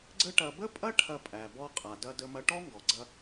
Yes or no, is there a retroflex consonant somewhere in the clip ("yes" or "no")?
yes